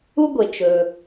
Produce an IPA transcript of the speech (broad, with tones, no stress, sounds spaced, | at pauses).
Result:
u˥ ɡʷ e˩ t͡ʃ ɵː˩